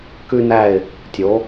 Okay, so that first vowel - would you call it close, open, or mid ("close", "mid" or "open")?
close